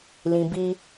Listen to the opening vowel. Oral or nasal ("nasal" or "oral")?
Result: nasal